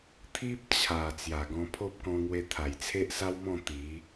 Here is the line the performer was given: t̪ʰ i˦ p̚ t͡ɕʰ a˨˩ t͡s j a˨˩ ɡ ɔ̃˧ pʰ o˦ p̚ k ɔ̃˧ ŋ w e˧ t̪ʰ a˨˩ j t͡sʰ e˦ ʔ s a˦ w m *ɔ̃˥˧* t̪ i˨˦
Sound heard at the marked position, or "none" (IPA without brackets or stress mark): ɔ̃˥˧